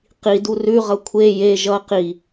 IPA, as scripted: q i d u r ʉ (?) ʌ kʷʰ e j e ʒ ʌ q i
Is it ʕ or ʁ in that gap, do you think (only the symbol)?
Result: ʁ